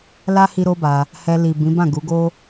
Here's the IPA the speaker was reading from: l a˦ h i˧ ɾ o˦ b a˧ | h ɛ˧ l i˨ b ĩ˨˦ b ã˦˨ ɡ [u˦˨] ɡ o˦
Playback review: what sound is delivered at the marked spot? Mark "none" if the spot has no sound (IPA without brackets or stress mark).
u˨˦